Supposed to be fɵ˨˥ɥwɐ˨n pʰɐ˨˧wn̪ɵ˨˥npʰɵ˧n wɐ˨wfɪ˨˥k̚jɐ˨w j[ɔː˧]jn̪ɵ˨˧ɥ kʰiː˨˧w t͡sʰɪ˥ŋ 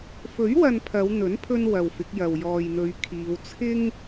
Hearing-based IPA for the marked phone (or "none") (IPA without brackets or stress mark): ɔː˨